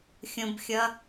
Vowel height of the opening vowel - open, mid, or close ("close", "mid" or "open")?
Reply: mid